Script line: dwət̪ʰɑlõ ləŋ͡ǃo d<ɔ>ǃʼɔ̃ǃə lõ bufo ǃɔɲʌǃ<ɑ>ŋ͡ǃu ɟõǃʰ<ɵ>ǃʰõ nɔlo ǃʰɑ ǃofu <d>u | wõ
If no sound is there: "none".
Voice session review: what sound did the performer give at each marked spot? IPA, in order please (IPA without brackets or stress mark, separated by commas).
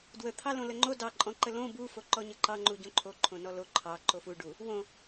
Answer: ɑ, ɑ, o, ɖ